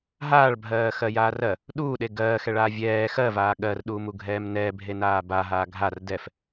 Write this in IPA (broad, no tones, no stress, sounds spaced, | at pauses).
ɦ aː ɭ bʱ ɜː x ɜ j aː r ɜ | ɗ uː ɗ e ɡ ɜː x ɛ ɭ aː vʲ ɛː x ɜ v aː ɠ ɜ r ɗ uː m u ɡʱ ɛː m n ɛː bʱ e n aː b a ɦ aː ɡʱ a r d ɛ f